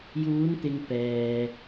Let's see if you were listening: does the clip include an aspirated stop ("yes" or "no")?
no